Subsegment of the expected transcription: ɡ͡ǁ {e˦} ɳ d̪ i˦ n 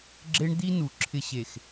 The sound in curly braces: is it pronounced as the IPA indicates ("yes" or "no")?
yes